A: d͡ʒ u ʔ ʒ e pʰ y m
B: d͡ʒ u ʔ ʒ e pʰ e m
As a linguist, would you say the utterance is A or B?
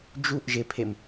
B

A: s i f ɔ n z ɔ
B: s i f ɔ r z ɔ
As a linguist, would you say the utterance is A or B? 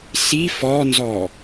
A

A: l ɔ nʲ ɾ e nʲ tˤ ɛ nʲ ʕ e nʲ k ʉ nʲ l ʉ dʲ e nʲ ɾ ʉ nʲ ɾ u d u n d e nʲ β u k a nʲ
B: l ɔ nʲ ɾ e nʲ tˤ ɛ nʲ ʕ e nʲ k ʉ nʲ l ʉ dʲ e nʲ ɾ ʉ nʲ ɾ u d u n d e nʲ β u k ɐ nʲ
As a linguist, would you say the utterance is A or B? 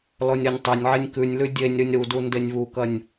B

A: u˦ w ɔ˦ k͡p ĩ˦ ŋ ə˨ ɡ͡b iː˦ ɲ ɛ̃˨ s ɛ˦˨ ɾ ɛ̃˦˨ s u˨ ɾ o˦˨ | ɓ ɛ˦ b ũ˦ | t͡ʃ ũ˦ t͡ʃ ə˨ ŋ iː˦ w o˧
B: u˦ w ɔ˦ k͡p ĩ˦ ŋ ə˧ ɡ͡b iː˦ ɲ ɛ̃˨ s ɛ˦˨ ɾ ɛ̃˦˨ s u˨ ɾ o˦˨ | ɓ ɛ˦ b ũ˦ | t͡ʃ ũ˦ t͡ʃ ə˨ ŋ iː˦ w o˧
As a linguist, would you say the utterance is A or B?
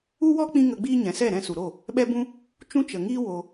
B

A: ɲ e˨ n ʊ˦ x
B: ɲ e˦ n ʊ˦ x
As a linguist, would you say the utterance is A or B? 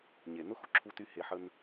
A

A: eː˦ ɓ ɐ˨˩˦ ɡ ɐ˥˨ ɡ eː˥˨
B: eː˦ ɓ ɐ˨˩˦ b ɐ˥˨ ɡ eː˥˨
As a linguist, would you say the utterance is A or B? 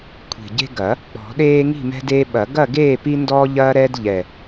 A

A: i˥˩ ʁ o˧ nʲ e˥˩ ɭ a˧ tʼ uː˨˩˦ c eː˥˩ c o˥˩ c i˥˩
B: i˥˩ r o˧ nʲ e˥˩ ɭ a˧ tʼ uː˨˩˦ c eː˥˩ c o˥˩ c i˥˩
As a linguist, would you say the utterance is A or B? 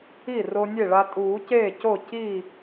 B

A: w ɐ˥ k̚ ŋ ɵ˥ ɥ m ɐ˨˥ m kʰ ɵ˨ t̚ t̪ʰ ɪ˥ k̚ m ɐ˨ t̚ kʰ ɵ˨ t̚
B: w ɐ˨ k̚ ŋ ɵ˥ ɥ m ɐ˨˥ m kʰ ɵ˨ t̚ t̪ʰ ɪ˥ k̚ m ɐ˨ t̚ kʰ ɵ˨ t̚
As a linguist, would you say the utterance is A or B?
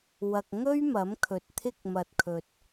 B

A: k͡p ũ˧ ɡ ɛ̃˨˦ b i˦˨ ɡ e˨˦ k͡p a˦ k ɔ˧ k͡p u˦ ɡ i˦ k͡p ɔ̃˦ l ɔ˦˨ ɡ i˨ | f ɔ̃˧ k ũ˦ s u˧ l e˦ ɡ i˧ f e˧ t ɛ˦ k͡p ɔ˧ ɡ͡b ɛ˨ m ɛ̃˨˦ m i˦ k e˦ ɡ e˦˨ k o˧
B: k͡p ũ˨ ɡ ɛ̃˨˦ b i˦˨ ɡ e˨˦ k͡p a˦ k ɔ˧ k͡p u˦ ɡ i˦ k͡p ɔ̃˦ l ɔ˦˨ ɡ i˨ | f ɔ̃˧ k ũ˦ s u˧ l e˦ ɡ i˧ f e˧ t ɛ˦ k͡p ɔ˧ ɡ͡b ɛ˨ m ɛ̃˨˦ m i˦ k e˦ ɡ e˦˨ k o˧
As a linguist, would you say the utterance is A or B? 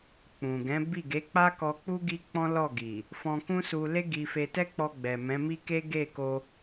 B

